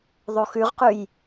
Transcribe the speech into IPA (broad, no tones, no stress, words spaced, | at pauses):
ðˤoxʉʁqʉj